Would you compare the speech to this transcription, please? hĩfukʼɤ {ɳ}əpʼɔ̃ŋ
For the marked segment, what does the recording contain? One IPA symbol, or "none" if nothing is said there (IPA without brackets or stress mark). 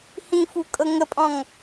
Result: ŋ